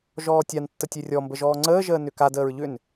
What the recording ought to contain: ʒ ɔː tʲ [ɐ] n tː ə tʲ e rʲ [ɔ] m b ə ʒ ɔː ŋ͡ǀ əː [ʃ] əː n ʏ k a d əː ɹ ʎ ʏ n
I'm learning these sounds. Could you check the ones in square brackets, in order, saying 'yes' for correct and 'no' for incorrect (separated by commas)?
no, yes, no